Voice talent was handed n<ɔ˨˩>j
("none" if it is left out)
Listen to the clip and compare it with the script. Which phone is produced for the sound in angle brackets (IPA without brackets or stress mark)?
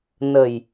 ə˨˩